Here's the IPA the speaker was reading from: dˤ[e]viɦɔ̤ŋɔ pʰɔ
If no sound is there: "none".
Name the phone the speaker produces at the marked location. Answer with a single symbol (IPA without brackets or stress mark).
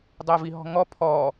e